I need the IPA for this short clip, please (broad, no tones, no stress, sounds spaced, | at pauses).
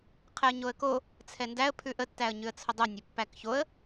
qʰ ɛ ə̯ ɲ o ə̯ k o | t͡sʰ ɛ n d æ ə̯ pʰ ʉ ʔ ə tː æ ə̯ ɲ ʉ ə̯ t͡sʰ ʊ dˤ u nʲ ɘ pː æ k ç o ə̯